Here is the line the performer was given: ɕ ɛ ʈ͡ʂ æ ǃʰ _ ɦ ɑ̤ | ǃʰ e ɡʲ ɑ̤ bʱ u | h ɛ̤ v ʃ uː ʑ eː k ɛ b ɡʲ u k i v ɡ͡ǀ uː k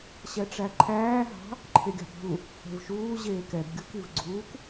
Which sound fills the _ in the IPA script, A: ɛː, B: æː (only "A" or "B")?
B